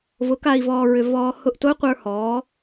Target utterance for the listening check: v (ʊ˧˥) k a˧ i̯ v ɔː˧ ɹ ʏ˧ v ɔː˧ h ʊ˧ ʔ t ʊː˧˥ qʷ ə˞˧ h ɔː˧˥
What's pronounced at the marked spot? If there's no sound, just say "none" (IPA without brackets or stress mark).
ʊ˧˥